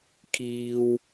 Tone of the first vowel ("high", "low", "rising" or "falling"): low